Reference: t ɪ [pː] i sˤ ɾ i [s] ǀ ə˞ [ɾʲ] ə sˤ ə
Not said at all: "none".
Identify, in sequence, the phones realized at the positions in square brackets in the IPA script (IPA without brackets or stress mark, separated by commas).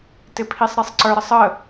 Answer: pʰ, sˤ, ɾ